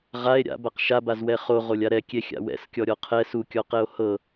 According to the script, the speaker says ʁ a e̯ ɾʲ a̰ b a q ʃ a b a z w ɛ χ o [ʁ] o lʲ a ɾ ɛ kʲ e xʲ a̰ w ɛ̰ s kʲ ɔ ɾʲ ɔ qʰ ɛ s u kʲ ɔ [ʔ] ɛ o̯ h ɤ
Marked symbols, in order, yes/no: yes, no

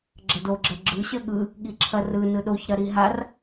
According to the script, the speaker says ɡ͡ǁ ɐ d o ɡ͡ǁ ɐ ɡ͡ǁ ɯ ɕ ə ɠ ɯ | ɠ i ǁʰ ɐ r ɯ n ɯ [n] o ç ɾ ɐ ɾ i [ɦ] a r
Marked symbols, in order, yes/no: no, yes

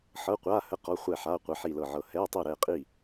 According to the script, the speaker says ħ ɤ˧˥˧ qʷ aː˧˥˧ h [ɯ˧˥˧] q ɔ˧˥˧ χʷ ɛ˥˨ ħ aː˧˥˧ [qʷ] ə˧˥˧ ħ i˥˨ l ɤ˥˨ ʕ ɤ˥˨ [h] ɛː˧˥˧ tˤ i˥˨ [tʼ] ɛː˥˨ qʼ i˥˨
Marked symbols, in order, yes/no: no, yes, yes, no

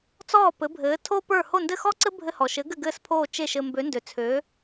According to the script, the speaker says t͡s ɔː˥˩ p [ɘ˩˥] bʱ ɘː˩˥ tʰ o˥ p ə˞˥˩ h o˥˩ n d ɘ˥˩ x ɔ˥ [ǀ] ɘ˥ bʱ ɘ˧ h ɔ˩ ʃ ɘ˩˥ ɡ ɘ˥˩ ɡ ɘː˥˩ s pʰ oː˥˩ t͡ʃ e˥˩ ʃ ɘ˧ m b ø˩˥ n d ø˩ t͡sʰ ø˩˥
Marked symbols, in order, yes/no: yes, yes

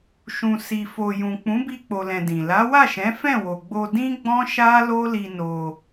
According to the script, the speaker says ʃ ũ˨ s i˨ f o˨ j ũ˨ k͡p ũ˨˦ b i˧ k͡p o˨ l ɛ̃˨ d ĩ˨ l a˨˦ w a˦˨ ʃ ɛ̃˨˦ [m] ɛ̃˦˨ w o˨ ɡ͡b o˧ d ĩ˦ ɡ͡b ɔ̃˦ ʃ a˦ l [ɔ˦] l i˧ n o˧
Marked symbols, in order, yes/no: no, no

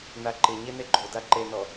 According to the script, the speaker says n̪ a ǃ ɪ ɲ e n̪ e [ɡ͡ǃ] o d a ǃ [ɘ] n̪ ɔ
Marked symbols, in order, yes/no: yes, no

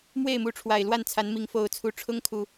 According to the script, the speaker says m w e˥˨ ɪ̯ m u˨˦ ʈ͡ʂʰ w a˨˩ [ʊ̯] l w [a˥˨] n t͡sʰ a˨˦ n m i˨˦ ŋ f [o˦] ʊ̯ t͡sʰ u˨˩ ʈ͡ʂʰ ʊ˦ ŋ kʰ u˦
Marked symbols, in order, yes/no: no, yes, no

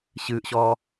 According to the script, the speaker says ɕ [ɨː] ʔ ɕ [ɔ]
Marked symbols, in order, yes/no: yes, no

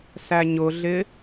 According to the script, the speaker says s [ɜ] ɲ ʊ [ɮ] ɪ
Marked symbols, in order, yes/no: no, yes

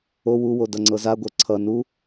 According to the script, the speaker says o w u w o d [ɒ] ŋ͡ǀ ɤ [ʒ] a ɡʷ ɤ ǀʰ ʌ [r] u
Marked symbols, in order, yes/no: no, no, no

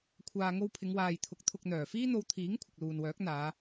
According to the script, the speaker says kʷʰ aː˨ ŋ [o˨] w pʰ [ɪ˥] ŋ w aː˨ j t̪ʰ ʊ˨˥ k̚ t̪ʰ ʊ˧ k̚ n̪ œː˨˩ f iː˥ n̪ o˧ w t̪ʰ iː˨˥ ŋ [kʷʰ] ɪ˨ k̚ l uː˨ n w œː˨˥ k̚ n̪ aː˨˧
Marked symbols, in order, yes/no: no, no, yes

